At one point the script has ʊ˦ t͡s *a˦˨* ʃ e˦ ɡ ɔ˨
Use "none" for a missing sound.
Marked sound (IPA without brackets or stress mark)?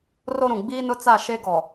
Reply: a˦˨